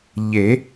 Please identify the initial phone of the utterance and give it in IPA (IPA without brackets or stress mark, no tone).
ʎ